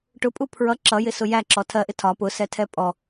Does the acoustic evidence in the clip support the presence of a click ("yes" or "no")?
yes